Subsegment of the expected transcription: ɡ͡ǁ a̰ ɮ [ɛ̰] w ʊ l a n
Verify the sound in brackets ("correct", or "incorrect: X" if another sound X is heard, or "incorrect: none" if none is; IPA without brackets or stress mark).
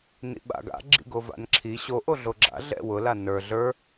correct